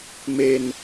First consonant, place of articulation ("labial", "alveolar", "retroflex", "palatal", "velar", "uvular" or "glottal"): labial